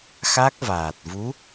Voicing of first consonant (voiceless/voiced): voiceless